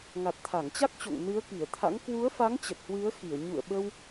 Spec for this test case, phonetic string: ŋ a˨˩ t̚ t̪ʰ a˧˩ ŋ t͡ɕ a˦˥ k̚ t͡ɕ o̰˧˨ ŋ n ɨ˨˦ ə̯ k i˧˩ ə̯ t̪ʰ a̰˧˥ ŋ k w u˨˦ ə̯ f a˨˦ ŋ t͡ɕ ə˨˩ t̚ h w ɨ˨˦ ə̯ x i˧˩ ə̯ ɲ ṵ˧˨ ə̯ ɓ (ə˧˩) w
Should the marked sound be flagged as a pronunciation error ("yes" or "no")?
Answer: yes